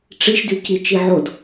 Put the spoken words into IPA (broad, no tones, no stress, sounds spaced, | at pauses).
ʈ͡ʂ i ʃ d y c i t͡ʃ i ʕ o d